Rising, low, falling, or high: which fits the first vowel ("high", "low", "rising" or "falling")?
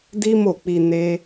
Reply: high